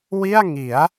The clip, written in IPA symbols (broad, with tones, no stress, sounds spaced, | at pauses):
w i˥˩ a̯ ŋ i˩˦ a̯